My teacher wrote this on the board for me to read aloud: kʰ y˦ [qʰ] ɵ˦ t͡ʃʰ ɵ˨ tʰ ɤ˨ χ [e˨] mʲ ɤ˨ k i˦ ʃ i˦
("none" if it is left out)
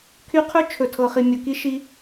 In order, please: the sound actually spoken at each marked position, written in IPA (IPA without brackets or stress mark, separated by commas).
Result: qʰ, i˨